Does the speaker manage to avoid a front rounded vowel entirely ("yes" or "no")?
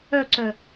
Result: no